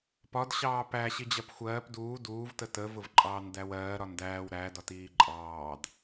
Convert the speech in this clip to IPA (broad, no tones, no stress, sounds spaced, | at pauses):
p ɒ d ɕ ɑː p æ ɕ i d͡ʑ ɜ p xʷ ɜː p d uː d uː v t ə t ə v ʊ v ǃʼ ɑː n d æ w ɜː ɾ ɒ n d æː w ɾ æ d ɒ t iː ǃʼ ɑː d